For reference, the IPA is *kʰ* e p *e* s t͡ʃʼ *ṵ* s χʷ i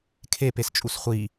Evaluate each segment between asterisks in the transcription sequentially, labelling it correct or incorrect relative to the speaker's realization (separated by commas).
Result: correct, correct, incorrect